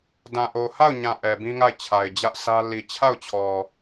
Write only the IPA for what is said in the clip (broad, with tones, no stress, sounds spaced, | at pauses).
d ã˨ ʔ o˨ h a˦˨ ʊ̯ ɲ ã˨ ʔ ɛ˨ b ĩ˦ ŋ a˦˨ ɪ̯ t͡ɕʰ a˨ ɪ̯ d͡ʑ ä˦ ʔ sʰ ä˦ l i˨ t͡ɕʰ a˦˨ ʊ̯ t͡ɕʰ ɔ˨